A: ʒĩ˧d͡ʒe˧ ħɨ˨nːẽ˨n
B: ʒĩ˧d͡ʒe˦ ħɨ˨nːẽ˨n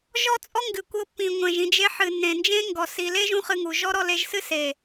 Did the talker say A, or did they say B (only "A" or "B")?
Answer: A